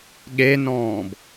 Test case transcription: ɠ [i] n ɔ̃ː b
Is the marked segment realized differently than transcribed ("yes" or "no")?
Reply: yes